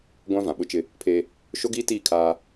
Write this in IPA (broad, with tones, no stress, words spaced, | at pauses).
ɡʷã˦ vã˨ɓʊ˦ t͡ʃɪ˦ | pʰeː˦ | ʃo˦ɡiː˦tiː˦˨ kʰaː˦